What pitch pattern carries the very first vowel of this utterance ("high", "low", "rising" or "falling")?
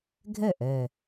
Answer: falling